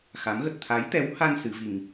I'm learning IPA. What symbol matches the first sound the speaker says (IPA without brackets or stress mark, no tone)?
x